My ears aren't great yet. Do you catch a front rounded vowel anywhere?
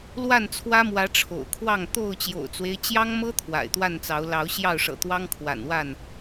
no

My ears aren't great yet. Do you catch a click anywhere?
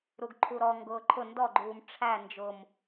yes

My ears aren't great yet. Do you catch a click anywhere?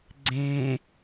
yes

